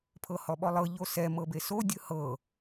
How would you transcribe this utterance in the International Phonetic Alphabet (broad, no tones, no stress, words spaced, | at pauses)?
pʰɤhɔɓɔlˠɤ ʎosɛ mɤbeso dʲɯhɤ